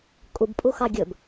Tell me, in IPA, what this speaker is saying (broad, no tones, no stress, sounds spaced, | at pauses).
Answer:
kʼ u b pʼ u x ɑ ɡʲ ɵ b